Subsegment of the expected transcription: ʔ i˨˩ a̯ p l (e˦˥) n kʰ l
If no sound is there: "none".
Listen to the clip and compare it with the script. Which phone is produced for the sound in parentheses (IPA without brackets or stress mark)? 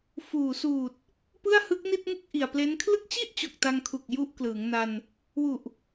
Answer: e˦˥